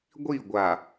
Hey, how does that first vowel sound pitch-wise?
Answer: falling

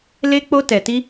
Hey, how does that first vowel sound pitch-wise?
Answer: high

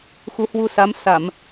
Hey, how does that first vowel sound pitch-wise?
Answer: rising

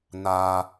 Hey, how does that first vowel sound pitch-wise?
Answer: low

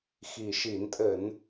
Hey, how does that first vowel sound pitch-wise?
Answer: low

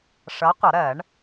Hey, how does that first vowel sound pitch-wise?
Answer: rising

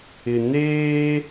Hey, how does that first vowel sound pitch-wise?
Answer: low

